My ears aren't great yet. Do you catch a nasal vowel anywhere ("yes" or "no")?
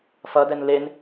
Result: no